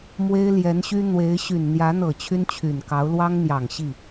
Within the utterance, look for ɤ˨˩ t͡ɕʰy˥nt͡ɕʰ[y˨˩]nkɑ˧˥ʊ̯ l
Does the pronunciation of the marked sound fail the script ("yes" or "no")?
no